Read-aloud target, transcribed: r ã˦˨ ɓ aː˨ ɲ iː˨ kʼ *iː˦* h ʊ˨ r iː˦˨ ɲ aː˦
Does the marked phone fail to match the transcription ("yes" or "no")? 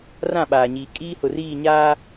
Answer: no